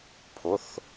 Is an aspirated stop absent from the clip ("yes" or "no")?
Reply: no